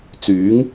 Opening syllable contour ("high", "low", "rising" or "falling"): rising